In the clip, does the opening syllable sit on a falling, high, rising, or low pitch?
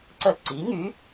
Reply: falling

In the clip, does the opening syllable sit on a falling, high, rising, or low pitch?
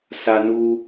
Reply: high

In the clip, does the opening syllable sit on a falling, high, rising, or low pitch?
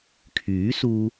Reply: rising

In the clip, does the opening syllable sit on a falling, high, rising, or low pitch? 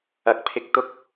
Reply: rising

